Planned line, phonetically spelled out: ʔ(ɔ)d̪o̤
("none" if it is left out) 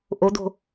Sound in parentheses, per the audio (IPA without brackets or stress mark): o